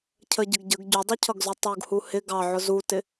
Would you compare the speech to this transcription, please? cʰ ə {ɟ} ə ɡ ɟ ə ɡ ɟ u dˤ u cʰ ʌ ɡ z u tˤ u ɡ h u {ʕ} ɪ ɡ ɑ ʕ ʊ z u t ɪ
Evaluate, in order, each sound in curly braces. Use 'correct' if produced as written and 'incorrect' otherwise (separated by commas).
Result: correct, incorrect